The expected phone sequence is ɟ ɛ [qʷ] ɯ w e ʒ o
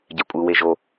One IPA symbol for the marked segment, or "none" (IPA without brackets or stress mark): kʷʼ